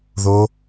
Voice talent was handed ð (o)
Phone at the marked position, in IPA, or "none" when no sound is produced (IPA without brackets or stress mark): o